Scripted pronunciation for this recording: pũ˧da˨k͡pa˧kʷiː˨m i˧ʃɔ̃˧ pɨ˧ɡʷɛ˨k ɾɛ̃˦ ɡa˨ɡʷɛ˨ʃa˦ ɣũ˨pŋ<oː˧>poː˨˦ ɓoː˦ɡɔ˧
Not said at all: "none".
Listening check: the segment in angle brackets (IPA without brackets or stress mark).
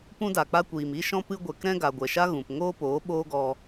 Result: oː˦